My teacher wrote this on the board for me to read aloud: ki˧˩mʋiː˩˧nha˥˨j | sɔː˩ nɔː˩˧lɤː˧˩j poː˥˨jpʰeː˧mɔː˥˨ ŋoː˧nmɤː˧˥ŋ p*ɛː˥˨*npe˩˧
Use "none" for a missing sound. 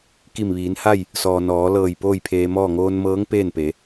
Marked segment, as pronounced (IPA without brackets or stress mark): eː˥˨